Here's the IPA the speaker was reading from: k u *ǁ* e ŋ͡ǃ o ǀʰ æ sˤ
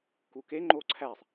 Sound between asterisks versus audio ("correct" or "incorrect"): incorrect